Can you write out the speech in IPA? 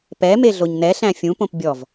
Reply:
p ɛ m e ɮ o ɲ n ɛ ɬ æ̃ fʲ ũ p õ p bʲ ɔ v

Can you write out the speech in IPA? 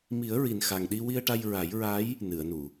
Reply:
m i˨˩˦ ə̯ ɹ i˨˩ n x a˨˩ ŋ ɗ i˧ w i˧ ə̯ ʈ a˧ j ɹ a˨˩˦ j ɹ a˧˥ j | n ɨ˨˩˨ ə̯ n u˨˩˨

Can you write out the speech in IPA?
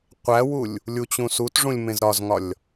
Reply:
qʷ æ w u lʲ | lʲ u t͡ɕ ũ s u t ʐ ũ lʲ m ẽ z ɾ ɒ z ŋ ɒ lʲ

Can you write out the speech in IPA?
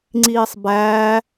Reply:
ŋ͡ǀ iː sˤ b æː

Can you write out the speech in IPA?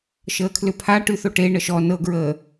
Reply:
ʃ əː kʰ l ʏ pʰ a ʈ ʉ θ o ʈ e ɳ ə ʃ ɔ n ɤ ɡ ɹ əː

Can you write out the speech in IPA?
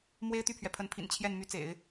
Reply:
m w e˥ ɪ̯ t̪ y˥˩ pʰ ɥ ɛ˩ pʰ ə˧˥ n pʰ ḭ˨˩ n t͡ɕʰ j ɛ˥˩ n m y˧˥ t͡s ḛ˨˩˦ ɪ̯

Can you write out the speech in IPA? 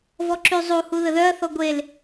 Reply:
v ɔ ǁ y zˤ u h u ð ə ð œ ɐ̯ θ ɔ ɡʷ e l

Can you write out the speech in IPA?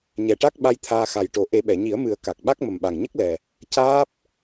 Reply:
ɲ ɛ˨˩ ʈ a˦˥ k̚ ɓ a˧ j t̪ʰ aː˧ x a˨˩ j ʈ o˨˩˦ ʔ e˨˩˦ ɓ ɛ˨˩˨ ɲ i˨˩˦ ə̯ m ɨ˨˩˦ ə̯ k a˨˩ k̚ ɓ a˦˥ k̚ m ə˨˩ m ɓ a˨˩ ŋ ɲ ə˦˥ k̚ l ɛ˨˩ | c aː˦˥ p̚

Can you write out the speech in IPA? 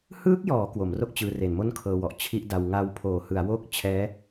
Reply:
h ɯː˦˥ k̚ j ɔː˩˦ k w o˩˦ m r o˥˩ k̚ t͡ɕ ɯː˧ r e˨˩ n m o˥˩ n kʰ ɤː˧ w ɔ˨˩ ʔ t͡ɕʰ i˥˩ ʔ d a˧ w ŋ a˧ w pʰ oː˩˦ h ɯ˩˦ a̯ w o˥˩ k̚ t͡ɕʰ ɛː˦˥

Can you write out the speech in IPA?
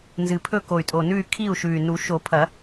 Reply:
n z ɨ˨˩ pʰ ɵ˥˨ k o˨˩ y̯ tʼ o˨˩ n ʉ˥˨ y̯ kʰ i˥˨ u̯ ʃ ʉ˨˩ y̯ n u˨˩˦ ʃ o˨˩˦ pʰ ɐ˨˩˦

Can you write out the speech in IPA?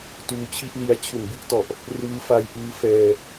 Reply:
t uː˧ t͡ɕʰ i˥˩ ʔ l i˦˥ a̯ t͡ɕʰ u˨˩ n b i˦˥ ʔ t ɔ˨˩ ʔ | r ɯː˦˥ f a˦˥ j ʔ ɯː˦˥ f ɛː˧

